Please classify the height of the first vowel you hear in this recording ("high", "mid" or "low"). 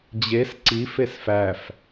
mid